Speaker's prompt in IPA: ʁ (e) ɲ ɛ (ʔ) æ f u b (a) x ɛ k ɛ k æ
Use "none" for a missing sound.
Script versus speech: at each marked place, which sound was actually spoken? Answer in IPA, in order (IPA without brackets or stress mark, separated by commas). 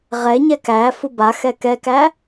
ɛ, k, a